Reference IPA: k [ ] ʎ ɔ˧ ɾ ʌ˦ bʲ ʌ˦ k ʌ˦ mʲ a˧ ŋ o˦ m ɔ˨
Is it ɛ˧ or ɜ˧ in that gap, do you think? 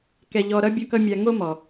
ɛ˧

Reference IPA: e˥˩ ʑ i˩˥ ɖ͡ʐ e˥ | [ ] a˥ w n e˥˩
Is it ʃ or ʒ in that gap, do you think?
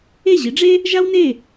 ʒ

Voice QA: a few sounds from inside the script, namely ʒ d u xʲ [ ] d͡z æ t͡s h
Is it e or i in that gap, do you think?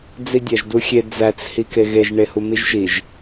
e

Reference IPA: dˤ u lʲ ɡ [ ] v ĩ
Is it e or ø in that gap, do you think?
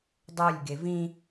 e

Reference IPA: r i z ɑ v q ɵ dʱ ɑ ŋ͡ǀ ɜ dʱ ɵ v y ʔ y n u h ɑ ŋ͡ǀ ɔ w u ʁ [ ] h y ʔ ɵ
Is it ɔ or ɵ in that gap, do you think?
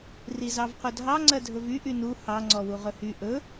ɵ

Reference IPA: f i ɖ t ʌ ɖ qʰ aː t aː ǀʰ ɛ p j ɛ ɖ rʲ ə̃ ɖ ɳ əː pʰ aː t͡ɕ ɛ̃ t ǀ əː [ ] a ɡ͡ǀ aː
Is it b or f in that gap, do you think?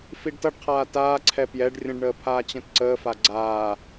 f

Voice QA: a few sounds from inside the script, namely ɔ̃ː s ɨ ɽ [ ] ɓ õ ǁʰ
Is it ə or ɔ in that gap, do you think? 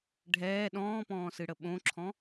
ə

